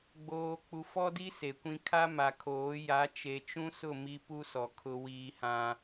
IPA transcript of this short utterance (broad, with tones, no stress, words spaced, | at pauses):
ɡ͡boː˨ k͡pu˨fɔ˦di˦ se˨kʷĩ˦ kʰa˦ma˨kʰoː˨˦ ja˨˦t͡ʃe˨t͡ʃũ˦sʊ˦˨ mi˦pu˦sɔ˨ kʰʊ˦ wiː˦hã˦